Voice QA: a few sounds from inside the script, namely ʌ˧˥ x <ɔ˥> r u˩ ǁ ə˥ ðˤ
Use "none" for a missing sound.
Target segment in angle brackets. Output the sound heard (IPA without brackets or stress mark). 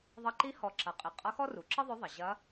ɔ˥